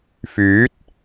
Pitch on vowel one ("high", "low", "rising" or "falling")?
rising